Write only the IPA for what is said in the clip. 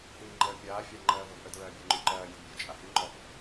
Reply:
hiːŋ͡ǃəː pʲaːfʲɑ ŋ͡ǃɜːvəvʔədɹɜː bʲeŋ͡ǃʉǃɜː mʲudbʲu t͡ʃʼahyŋ͡ǃɔʔ

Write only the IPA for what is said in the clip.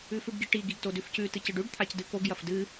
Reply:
ʉfʉɖɡiʈi ɡiɡtodʉfcʉ tɨcɨɖʉɖ t̪ʰacdɨkoɡ jɐfdɨ

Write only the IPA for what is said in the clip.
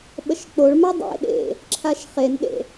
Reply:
ɓəʃk͡poɭma dˤḛ ɗḛ | ǁʰaʃχenɗḛ

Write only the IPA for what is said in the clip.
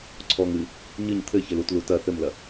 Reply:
ǀʰɔŋ ɨ | ɲɨɲ t̪ʰɘ çɘlutlu tɐ θɘmlɐ

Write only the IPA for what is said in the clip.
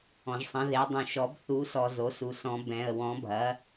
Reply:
ɔ̃˨ʒsˤɐ̃˩˥ðe˩˥ dˤũ˨ʃɔ˩˥b θu˩˥sɔ˨ zo˩˥su˨ sɔ̃˩˥bɛ̃˨ə̯ wɔ̃˩˥bʱɐ˩˥

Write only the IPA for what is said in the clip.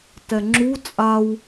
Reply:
tɛŋ͡ǁu t͡sʼaw

